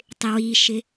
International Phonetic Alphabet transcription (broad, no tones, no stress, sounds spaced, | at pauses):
tˤ ɪ w i ʃ ɪ